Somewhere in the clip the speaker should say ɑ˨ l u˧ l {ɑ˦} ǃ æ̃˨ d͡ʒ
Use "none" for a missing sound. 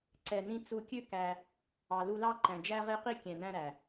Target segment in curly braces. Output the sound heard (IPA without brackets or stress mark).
ɑ˦